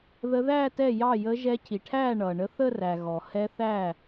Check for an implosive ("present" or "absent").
absent